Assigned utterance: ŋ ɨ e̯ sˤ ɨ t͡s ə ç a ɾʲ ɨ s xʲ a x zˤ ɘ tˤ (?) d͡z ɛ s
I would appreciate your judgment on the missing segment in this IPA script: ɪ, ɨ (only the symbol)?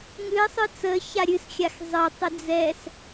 ɪ